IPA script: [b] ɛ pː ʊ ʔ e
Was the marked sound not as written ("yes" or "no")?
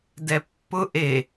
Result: yes